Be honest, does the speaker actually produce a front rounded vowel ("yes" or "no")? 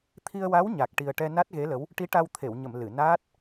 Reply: no